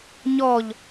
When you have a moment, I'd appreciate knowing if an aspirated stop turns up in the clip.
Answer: no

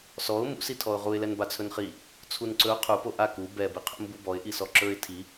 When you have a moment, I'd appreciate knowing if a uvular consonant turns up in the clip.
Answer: yes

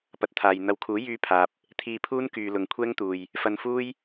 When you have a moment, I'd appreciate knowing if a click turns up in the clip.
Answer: no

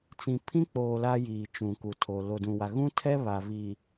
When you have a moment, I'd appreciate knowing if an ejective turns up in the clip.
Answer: no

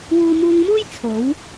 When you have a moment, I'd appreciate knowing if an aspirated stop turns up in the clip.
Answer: yes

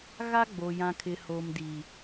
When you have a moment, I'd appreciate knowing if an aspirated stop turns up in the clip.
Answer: yes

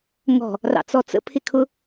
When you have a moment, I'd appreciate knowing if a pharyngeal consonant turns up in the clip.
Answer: no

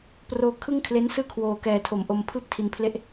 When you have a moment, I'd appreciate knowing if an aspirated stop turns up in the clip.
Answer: yes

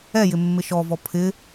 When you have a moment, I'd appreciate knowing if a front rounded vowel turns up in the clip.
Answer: no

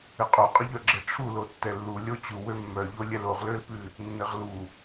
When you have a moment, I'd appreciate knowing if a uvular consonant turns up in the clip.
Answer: yes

